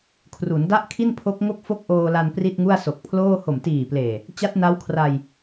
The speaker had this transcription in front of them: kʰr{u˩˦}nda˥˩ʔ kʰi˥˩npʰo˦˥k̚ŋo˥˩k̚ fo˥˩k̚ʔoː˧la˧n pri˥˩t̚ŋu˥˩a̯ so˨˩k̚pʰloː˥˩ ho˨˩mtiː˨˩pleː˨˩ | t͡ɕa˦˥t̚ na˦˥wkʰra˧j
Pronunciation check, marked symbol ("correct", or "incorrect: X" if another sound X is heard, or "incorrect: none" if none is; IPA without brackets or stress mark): correct